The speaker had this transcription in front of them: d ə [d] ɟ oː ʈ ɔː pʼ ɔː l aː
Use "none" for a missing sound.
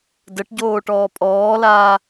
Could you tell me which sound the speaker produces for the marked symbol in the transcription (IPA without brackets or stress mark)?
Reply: ʈ